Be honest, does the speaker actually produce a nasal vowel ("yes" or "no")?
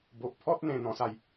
yes